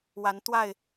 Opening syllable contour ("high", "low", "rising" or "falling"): rising